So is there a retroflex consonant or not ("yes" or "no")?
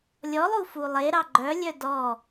no